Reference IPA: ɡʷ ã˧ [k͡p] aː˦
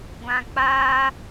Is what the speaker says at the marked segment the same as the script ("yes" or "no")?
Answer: yes